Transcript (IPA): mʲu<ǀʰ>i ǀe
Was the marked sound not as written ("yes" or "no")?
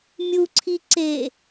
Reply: no